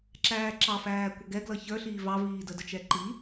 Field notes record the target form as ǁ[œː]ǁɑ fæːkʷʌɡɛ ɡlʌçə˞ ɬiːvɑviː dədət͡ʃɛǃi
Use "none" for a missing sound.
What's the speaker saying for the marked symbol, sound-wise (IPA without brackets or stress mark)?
æː